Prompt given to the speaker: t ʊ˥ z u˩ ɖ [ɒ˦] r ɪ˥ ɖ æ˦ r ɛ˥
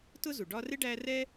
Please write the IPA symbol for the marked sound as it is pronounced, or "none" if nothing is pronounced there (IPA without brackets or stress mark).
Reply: ɒ˦